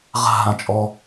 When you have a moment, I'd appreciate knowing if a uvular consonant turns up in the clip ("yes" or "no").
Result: yes